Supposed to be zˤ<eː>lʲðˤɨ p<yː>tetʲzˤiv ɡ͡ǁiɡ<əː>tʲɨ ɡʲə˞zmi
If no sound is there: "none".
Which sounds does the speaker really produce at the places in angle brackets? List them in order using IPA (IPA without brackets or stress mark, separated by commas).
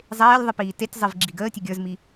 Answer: eː, iː, əː